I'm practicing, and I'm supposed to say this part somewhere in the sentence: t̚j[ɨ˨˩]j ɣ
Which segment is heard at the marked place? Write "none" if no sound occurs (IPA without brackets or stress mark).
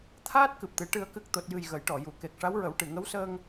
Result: ɨ˨˩